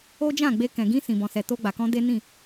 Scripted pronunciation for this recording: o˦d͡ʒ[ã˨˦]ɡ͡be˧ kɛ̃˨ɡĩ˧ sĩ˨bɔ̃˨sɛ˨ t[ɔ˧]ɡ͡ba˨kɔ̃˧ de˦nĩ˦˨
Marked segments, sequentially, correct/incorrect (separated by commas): incorrect, incorrect